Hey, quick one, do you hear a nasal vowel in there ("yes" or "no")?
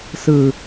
no